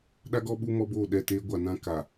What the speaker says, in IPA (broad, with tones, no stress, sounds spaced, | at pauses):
ɗ a˦ ɡ ɔ˦ ɓ u˦ m ɔ˦ b o˦˨ ɗ ɛ˦˨ t eː˦ ɡʷ a˨ n ã˦ k a˨